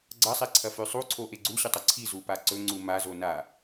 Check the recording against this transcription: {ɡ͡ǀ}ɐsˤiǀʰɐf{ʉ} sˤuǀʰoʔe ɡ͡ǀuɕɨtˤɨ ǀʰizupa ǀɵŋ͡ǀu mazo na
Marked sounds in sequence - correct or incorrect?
correct, correct

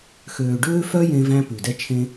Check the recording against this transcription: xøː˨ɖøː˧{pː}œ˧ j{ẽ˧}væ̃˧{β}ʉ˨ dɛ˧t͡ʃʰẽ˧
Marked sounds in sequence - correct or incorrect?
incorrect: f, correct, incorrect: p

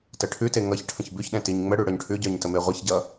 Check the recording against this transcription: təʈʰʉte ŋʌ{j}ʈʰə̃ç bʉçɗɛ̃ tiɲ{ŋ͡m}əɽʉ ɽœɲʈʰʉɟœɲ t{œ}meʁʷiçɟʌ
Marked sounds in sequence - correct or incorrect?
incorrect: ç, correct, incorrect: ə

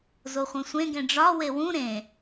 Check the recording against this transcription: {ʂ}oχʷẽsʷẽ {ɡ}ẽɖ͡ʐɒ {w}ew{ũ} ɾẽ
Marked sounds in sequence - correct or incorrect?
incorrect: z, correct, correct, correct

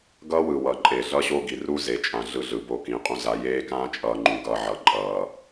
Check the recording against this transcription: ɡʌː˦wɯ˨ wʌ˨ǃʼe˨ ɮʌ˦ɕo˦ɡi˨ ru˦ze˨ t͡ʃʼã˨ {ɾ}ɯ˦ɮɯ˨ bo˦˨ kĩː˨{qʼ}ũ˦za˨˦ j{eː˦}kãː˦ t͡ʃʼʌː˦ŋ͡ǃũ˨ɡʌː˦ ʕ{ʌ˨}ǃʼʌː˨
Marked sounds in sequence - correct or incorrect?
incorrect: ɮ, correct, correct, correct

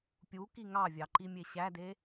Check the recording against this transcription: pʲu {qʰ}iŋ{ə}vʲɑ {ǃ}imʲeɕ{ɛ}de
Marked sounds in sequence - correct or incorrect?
incorrect: k, incorrect: ɑ, correct, incorrect: æ

